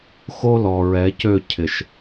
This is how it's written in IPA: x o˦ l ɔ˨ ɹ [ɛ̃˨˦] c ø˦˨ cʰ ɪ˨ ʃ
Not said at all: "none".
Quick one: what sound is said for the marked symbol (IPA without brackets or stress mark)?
ɛ˨˦